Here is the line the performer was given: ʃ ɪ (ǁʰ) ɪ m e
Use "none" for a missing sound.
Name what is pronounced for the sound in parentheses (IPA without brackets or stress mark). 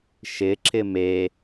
ǁʰ